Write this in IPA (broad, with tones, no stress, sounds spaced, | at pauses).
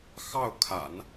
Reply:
x ɑ˥˩ ʊ̯ kʰ a̰˨˩˦ n